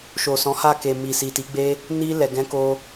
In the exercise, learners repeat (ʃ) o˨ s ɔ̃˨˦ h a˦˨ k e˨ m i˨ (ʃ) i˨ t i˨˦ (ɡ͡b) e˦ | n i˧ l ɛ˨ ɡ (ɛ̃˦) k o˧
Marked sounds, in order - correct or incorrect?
correct, incorrect, correct, incorrect

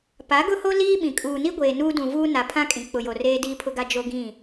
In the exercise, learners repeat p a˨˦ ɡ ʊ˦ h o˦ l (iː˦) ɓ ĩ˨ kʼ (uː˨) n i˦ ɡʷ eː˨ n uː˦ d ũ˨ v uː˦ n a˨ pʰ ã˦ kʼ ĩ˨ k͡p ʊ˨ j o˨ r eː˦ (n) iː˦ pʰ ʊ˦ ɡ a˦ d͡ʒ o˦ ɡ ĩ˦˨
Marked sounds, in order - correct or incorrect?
correct, correct, incorrect

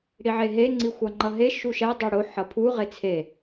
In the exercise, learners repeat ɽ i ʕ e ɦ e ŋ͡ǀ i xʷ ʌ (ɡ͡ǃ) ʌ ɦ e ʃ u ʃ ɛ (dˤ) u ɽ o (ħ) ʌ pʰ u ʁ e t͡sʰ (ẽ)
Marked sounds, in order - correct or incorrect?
incorrect, correct, correct, incorrect

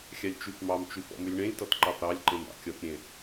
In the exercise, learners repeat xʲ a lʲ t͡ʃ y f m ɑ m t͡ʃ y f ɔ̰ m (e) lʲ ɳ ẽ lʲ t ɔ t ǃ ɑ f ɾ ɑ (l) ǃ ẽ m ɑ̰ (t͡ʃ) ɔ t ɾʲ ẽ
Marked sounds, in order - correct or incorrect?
incorrect, incorrect, incorrect

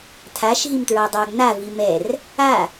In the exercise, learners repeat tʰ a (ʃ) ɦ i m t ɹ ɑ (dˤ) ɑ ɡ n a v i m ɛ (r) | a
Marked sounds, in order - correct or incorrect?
correct, correct, correct

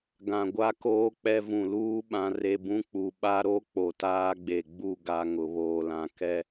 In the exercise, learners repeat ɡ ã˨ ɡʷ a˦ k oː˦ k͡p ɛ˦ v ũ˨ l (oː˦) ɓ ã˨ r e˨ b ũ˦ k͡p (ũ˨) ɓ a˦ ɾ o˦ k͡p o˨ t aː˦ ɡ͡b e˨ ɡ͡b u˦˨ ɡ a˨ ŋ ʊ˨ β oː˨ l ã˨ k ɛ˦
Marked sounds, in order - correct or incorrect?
incorrect, incorrect

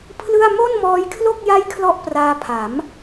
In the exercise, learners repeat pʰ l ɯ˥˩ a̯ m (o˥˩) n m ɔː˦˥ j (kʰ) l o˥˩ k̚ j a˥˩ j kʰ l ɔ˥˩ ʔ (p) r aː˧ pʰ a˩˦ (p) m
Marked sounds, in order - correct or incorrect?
correct, correct, correct, incorrect

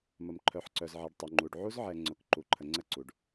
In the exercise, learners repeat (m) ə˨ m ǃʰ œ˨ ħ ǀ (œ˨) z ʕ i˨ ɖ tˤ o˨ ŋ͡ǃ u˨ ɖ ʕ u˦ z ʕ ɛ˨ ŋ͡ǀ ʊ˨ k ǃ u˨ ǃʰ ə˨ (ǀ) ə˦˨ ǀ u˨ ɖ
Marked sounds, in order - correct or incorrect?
correct, correct, incorrect

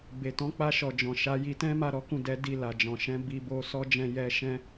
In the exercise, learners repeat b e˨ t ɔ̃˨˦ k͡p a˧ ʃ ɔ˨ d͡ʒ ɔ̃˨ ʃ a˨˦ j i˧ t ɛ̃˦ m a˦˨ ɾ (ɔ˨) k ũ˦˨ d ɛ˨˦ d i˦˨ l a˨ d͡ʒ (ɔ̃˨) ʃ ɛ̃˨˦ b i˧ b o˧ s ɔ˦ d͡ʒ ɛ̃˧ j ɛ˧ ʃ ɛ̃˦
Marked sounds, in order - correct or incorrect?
incorrect, correct

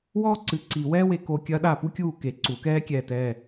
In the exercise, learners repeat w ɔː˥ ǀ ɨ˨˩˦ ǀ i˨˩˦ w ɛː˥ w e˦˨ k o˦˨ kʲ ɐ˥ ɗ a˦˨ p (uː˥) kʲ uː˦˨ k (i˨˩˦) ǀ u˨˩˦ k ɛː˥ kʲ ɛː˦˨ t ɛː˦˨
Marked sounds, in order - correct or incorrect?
incorrect, incorrect

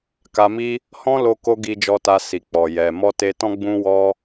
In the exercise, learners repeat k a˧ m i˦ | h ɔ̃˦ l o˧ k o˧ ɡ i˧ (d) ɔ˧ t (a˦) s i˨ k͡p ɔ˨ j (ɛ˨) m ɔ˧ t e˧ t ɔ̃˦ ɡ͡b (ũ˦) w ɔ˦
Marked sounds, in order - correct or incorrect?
incorrect, incorrect, correct, correct

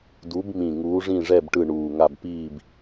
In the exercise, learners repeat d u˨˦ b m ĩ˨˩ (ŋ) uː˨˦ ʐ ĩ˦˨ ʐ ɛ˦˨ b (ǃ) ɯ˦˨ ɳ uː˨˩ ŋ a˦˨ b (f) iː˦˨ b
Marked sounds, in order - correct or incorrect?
correct, incorrect, incorrect

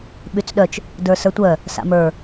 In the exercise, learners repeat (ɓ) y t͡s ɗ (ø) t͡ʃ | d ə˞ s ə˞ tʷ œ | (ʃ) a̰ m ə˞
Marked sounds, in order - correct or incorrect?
correct, incorrect, incorrect

